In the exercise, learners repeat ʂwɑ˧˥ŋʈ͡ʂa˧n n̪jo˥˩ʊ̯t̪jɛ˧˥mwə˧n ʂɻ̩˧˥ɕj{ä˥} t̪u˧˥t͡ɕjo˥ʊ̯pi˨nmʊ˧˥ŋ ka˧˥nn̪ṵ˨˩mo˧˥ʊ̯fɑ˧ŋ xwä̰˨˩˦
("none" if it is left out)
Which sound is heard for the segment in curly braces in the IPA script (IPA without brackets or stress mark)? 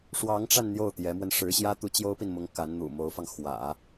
ä˥